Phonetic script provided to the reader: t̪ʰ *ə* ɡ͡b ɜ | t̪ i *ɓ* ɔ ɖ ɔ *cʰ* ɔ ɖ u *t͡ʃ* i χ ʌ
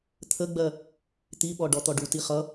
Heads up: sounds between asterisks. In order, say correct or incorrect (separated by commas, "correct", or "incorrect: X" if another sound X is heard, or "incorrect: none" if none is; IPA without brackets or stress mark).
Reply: correct, correct, incorrect: t̪, incorrect: t